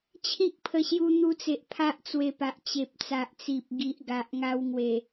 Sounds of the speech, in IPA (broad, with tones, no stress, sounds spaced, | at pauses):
t͡ɕʰ ĩ˦ k̚ pʰ ə˧ ɕ j u˧ n̪ u˧ t͡s e˨ ʔ pʰ a˦ ʔ t͡s w e˧ p a˨ ʔ t͡ɕ e˨ p̚ t͡s a˨ ʔ t͡s i˨ p̚ ɡ i˨ ʔ ɡ a˨ ʔ ŋ a˧ w ŋ w e˨˩